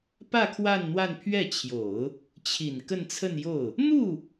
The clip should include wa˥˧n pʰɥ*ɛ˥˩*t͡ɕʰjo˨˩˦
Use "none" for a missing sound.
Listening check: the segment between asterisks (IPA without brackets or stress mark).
ɛ˥˩